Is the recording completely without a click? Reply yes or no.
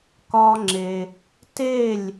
no